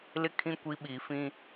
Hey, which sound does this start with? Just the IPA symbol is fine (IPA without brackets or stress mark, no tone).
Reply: l